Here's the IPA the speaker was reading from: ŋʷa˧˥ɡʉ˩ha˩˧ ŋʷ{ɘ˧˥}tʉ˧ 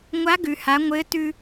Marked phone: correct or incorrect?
correct